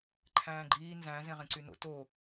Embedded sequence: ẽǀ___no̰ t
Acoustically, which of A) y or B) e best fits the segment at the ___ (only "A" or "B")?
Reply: A